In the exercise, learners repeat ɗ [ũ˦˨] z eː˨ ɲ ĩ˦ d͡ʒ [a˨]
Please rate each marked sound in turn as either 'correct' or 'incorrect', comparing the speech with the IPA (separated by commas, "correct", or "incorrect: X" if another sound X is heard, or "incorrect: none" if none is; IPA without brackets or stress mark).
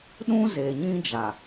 incorrect: ũ˦, correct